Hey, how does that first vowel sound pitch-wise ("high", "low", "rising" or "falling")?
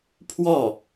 falling